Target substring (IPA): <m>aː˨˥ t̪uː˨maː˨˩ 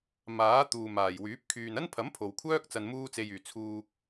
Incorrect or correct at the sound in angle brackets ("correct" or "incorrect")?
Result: correct